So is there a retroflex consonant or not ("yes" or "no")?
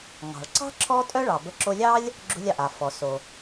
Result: yes